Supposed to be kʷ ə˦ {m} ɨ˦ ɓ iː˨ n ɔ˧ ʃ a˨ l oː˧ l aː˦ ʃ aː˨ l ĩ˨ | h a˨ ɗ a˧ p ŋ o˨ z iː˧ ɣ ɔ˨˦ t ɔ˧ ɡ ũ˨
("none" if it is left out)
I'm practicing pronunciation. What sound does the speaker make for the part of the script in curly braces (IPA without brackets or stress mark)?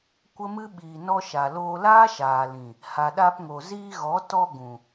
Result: m